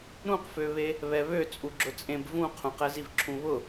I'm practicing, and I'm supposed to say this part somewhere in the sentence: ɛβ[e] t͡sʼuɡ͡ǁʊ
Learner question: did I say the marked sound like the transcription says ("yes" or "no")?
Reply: no